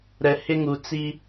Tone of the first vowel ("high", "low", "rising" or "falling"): low